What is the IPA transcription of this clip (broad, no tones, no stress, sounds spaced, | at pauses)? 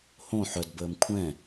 h õ ħ œ d b əː m kʷʰ ɛ̃